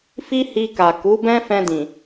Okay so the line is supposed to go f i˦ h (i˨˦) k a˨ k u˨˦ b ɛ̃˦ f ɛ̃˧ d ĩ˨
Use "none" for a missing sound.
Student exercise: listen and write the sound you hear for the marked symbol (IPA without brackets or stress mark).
i˧